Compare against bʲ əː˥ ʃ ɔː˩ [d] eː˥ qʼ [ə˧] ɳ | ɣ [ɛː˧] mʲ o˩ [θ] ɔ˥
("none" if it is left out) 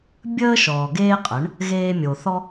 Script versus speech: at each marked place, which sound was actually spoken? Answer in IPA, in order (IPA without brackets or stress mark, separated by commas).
ɡ, ə˩˥, eː˧, θ